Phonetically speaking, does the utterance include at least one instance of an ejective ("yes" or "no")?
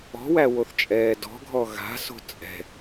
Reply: yes